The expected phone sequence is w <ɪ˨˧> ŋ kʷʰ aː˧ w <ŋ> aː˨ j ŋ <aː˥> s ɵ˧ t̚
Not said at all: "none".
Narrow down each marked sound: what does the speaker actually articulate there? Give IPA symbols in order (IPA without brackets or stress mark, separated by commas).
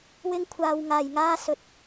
ɪ˥, ŋ, aː˥